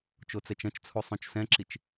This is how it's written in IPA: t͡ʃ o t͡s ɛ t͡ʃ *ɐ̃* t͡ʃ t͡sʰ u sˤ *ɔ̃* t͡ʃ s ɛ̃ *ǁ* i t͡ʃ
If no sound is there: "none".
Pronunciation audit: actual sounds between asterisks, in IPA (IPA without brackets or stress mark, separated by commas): ɐ̃, õ, ǁ